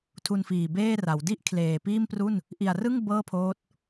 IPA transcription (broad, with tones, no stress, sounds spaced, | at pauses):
tʰ u˧ n f iː˨˩ b eː˥˩ r a˩˦ w d i˥˩ ʔ kʰ l eː˨˩ p iː˥˩ m p r u˥˩ n | ʔ i˨˩ a̯ r ɯ˥˩ ŋ b ɤː˥˩ pʰ oː˦˥ t̚